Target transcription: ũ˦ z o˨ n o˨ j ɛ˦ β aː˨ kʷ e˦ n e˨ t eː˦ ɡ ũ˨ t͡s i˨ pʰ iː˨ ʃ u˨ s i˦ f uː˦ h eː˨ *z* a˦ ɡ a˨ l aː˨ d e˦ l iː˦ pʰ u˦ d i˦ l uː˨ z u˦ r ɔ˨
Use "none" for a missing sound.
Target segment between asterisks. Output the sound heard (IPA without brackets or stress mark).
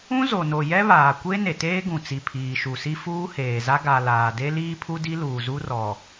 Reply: z